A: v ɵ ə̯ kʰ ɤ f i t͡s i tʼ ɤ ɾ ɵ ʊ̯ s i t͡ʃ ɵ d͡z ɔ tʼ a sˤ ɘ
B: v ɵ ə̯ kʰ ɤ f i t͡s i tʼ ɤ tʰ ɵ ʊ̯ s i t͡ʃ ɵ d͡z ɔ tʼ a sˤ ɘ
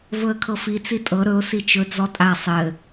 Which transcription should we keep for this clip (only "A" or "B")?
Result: A